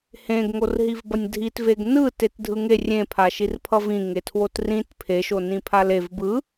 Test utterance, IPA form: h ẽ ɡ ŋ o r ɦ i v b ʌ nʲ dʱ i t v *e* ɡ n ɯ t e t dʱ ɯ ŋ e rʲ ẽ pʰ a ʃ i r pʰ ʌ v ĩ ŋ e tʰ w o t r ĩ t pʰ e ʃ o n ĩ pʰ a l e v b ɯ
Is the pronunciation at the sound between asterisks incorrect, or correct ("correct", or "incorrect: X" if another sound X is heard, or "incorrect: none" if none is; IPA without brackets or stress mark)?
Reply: correct